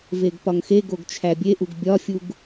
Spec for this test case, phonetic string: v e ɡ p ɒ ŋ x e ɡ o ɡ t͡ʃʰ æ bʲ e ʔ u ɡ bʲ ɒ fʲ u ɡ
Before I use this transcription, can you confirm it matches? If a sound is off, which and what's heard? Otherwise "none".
none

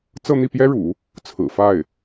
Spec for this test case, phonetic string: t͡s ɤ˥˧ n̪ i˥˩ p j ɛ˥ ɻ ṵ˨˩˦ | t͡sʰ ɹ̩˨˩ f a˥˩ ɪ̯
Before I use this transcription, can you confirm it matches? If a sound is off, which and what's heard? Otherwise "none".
none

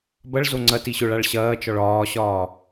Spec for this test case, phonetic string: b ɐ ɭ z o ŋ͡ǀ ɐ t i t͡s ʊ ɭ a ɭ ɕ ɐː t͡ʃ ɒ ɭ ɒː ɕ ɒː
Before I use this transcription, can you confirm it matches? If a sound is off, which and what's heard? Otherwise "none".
t͡s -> ɕ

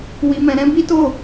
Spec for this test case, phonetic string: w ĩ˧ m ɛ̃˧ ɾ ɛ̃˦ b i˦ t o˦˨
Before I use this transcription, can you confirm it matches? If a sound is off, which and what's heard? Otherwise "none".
ĩ˧ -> i˧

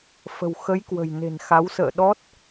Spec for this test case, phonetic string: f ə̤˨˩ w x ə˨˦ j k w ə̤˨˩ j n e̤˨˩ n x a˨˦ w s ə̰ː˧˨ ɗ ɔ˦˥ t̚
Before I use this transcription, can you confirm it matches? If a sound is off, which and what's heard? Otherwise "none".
none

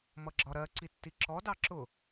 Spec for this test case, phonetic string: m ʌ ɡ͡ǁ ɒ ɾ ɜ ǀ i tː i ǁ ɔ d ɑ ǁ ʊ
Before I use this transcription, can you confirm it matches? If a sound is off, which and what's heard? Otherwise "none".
none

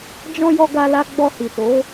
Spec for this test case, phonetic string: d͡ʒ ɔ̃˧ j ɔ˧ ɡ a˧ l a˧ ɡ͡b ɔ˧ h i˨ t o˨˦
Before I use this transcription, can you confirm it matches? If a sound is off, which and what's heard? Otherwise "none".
none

